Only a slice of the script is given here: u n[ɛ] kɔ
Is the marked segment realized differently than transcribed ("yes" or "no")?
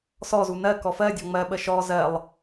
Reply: yes